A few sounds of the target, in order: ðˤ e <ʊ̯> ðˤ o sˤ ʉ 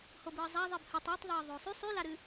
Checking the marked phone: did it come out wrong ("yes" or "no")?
yes